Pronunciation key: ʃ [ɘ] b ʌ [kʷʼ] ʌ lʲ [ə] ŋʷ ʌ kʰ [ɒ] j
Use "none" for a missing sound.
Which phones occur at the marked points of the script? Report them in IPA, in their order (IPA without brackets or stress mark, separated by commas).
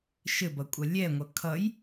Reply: ɘ, kʷʼ, ɛ, ʌ